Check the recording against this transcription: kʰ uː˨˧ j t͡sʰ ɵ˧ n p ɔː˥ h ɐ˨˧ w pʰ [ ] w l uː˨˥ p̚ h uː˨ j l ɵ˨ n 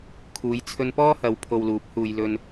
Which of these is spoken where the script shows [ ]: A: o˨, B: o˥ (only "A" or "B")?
A